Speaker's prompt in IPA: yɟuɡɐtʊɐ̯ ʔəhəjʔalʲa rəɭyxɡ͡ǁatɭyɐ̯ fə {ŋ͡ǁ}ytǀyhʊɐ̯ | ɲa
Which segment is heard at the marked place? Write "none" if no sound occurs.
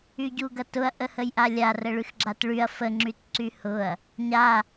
ŋ͡ǁ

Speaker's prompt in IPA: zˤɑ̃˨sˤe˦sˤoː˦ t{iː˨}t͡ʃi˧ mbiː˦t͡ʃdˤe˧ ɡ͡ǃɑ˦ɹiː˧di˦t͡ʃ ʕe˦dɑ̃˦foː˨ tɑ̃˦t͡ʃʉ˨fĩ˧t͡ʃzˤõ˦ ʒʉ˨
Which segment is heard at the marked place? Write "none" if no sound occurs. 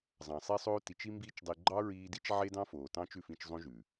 i˨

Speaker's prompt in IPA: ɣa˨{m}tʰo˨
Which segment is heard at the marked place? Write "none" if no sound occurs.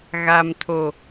m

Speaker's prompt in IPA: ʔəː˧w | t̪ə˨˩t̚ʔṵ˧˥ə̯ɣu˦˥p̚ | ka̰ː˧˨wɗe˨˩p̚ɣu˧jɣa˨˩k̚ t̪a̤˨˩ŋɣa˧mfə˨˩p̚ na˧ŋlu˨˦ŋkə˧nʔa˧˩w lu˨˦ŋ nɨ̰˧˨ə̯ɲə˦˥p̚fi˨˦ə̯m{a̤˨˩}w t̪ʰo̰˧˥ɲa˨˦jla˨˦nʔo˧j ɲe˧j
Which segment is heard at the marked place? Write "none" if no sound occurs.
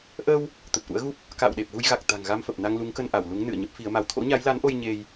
a˧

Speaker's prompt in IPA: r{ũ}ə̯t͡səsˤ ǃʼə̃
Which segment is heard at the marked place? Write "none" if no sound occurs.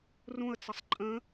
ũ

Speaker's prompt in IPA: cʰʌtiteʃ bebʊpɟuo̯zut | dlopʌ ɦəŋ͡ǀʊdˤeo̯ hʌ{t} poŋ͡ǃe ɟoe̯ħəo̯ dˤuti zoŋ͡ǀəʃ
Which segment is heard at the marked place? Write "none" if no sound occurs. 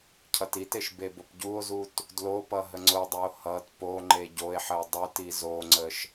t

